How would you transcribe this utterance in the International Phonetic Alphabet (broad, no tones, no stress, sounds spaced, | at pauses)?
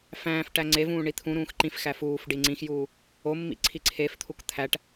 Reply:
f æ̃ː f ʈ æ ŋ͡ǀ e v ũː ɳ i t̪ʰ ũ ɾ ũː x ǃ ĩ f x æ f uː f ɖ i ŋ͡ǀ ĩ x j uː | o mː ḭ ǀʰ i ǀʰ e f t̪ʰ u k t̪ʰ æ ʈ